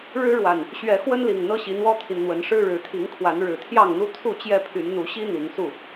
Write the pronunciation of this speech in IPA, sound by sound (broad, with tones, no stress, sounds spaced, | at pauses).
ɻ ɻ̩˦ ɻ w a˨˩ n | ɕ ɥ ɛ˨˦ x w ə˦ n l i˨˩ ŋ n̪ ɤ˦ ɕ i˨˦ n̪ w ɔ˦ t̪ʰ i˨ n n̪ w ə˨˦ n ʂ ɻ̩˦ ɻ ɻ̩˨˦ t̪ʰ i˨˦ ŋ kʰ w a˨˦ n ɻ ɻ̩˨˩ t̪ʰ j ɑ˥˨ ŋ n̪ u˦ t̪ʰ u˥˨ t͡ɕ j ɛ˥˨ pʰ y˨˦ n n̪ u˨˦ ɕ i˦ n̪ i˨˦ ŋ s u˥˨